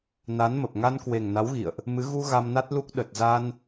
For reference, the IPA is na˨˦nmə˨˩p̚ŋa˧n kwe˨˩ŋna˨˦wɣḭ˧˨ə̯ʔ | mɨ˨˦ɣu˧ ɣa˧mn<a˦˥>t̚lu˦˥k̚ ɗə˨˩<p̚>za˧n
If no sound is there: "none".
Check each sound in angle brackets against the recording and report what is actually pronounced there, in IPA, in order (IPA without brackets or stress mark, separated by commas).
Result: a˦˥, t̚